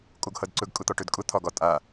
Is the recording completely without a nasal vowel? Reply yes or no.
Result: yes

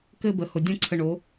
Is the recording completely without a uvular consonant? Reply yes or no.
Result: yes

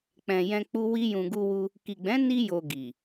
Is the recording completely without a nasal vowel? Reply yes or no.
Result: no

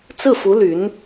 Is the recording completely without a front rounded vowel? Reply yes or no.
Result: no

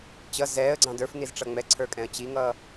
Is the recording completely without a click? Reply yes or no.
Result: no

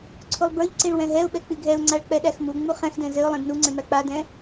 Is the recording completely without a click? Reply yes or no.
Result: no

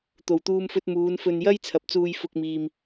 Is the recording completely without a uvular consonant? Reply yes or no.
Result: yes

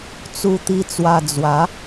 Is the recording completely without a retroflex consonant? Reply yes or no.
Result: yes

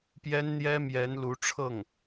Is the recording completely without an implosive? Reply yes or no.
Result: yes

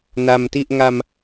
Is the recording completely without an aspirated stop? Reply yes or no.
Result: yes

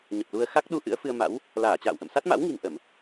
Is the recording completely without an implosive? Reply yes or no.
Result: no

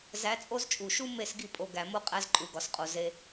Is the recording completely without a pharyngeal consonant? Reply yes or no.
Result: yes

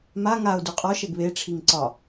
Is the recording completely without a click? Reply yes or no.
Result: no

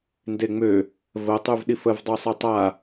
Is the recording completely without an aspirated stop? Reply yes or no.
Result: yes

